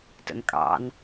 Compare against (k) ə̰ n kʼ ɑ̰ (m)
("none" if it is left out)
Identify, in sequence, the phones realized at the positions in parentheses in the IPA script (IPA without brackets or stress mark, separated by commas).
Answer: t, n